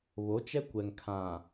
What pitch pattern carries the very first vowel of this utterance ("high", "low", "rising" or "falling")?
rising